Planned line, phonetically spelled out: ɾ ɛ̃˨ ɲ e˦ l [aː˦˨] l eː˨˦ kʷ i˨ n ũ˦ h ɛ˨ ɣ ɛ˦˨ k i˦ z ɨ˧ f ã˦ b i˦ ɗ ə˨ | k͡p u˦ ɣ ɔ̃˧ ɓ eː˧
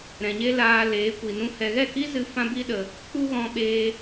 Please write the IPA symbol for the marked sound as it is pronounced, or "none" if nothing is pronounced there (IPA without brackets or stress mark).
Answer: aː˧